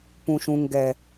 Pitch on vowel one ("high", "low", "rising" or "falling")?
low